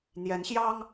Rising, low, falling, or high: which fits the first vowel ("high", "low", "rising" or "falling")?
rising